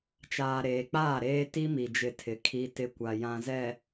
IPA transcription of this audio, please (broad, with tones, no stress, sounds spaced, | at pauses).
t͡ʃ aː˨ ɾ eː˨ k͡p aː˦˨ ɾ eː˦ t i˦ m i˨ d͡ʒ ɪ˨ tʰ ɪ˨ kʰ i˨ t ɪ˨ kʷ a˨ j ã˨ z ɛ˨